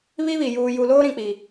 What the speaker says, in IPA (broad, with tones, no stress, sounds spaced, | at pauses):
β i˦ β i˨ j uː˨ j u˨ l oː˦ ɾ ĩ˨ k͡p i˨